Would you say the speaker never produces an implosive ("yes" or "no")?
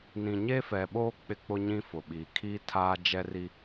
no